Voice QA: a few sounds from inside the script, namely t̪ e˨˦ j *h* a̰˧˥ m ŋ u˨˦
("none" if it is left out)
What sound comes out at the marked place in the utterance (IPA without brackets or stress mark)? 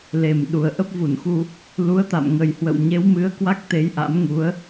ʔ